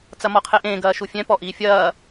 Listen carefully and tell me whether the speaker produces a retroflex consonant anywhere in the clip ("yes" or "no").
no